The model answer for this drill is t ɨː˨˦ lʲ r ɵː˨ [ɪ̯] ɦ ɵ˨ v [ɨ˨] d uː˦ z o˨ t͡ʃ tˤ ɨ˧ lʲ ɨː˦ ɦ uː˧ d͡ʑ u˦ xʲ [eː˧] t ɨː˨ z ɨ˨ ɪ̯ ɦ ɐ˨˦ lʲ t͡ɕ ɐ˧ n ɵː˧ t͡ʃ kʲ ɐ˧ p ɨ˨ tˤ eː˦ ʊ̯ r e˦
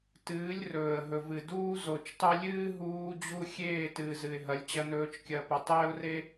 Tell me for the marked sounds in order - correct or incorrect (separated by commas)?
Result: incorrect, correct, incorrect